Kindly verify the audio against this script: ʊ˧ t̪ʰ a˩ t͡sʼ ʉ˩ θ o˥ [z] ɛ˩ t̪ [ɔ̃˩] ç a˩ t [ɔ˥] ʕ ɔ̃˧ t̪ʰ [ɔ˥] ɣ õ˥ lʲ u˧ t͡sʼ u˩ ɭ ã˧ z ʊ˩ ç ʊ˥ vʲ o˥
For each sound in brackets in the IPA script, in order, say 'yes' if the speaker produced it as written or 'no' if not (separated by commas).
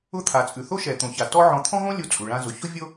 no, no, yes, no